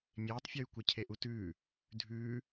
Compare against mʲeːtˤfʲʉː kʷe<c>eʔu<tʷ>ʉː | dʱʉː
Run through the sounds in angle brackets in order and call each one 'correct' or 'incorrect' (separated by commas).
incorrect, incorrect